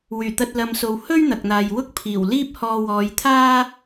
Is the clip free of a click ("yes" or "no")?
yes